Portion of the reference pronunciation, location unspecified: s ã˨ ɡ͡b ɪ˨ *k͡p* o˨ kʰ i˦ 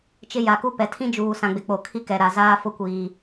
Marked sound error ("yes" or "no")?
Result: no